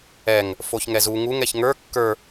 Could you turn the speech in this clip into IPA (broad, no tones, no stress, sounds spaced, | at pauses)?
ɛ ŋ | f o ç ŋ ɛ z u ŋ u ŋ ɛ ç ŋ ə˞ kː ə˞